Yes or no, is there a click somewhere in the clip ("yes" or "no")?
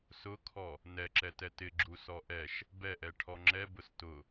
yes